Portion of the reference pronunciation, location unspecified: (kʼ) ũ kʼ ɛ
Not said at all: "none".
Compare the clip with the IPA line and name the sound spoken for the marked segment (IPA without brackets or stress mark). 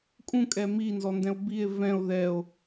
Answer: kʼ